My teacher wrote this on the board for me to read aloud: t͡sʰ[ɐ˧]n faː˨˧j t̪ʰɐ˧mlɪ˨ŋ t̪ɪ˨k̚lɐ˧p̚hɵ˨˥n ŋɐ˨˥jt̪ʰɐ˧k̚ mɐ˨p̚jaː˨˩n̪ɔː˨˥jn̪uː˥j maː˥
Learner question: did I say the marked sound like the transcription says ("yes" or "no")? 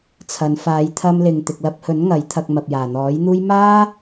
no